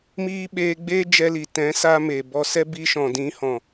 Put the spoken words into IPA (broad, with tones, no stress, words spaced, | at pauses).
miː˦ ɓeː˧ɡ͡beː˦ d͡ʒɛ˧li˨ tɛ̃˨˦sa˧ me˨bɔ˧sɛ˦ bi˧ʃɔ̃˨dĩ˨˦ hɔ̃˨